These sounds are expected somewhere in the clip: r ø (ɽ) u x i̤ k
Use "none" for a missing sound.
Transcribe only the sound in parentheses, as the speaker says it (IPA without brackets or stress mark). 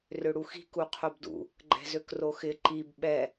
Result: ɽ